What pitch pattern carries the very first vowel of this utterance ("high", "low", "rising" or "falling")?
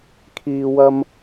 low